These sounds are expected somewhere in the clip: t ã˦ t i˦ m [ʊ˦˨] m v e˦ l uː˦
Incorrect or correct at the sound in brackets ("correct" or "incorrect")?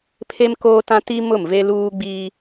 correct